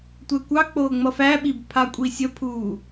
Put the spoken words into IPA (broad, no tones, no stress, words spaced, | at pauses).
tʷɛkʷɑk͡poː ŋ͡mʌfæɓib pʰakʷʼisʲəpʰuː